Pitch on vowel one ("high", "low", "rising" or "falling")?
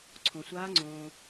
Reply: low